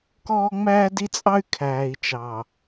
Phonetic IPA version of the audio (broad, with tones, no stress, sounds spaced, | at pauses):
k ɔː˦ ŋ͡m æː˦ d i˦ t͡sʼ ɑ˦ y̯ kʰ æː˨ i̯ t͡ʃ ɑ˨